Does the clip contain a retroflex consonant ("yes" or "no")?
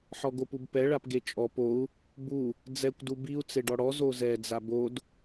yes